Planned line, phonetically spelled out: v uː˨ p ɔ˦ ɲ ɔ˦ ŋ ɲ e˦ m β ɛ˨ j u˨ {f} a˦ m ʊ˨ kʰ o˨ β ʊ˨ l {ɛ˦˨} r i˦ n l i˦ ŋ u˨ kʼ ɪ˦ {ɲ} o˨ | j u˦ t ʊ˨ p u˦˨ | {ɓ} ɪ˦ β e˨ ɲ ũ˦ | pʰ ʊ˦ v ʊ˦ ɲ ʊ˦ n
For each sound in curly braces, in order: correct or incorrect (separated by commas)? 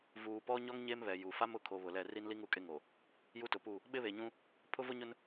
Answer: correct, correct, incorrect, correct